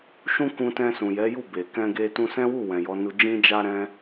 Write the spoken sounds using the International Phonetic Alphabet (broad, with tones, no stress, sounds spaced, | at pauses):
ʃ ũ˦ k ũ˧ t ɛ̃˧ s ũ˨ j ɛ˨˦ j u˦˨ b e˨ k ɛ̃˧ ɡ e˧ t ũ˧ s ɛ̃˦ w u˦˨ w ɛ̃˨ j ɔ˨˦ n u˧ d͡ʒ ĩ˧ d͡ʒ a˧ ɾ ɛ̃˧